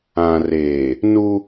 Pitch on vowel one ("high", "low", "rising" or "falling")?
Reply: low